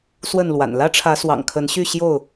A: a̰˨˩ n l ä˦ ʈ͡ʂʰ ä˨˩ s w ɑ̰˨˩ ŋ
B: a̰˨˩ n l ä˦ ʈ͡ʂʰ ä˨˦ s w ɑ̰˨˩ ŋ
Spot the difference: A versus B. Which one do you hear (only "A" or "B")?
B